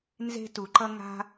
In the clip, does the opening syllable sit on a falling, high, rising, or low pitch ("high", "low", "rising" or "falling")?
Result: high